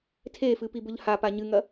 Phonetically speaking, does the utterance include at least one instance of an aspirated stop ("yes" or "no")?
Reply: yes